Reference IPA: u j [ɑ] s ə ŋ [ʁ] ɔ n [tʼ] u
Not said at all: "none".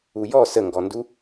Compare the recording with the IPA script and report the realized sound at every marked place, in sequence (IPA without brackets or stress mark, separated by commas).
ɔ, ɡ, d